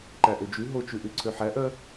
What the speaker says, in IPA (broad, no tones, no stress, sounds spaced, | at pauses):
ǃ æ ʔ ø d͡ʒ ʉ ɦ o t͡ʃ ʉ ʔ ʉ ǀʰ ø ħ æ ʔ œ